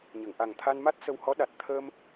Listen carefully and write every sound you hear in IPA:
ɲ ə˨˩˨ ŋ ʔ a˨˩ ŋ t̪ʰ a˧ n m a˦˥ t̚ s ə˧ w h ɔ˧˥ ɗ a˨˩ t̚ t̪ʰ əː˧ m

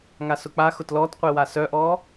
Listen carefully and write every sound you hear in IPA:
ŋ a s ʊ k͡p a x ʊ t l ɔ t qʷ e w a s œ ʔ ɔ

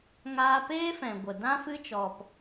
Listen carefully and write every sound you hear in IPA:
ŋ aː˧ p eː˦ f ɛ̃˨ ɡʷ ə˨ d ã˦ f ɨ˧ t͡ʃ ɔ˨ p

